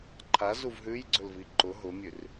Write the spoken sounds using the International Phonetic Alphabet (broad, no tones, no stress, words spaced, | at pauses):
ǃʰazuv ɦʉjɡ͡ǀɵlvi ǃʊ ɦʊmʲʉr